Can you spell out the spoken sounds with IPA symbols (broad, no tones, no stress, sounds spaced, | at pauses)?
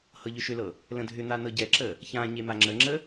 h ɤ ʎ ʏ ʃ ʏ l ɤ | l ə̃ dʱ ʏ n̪ a n ɤ ɟ ɛ ǁ ə | ç ã ɲ e m a ŋ͡ǁ ə ŋ͡ǁ ə